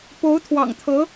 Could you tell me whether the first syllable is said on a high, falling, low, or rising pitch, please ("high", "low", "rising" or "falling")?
rising